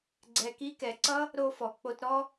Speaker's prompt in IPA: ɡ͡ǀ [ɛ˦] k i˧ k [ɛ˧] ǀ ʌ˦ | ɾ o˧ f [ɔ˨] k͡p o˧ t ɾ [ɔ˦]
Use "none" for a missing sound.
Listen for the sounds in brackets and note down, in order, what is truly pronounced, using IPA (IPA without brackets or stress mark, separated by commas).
ɛ˨, ɛ˨, ɔ˨, ɔ˦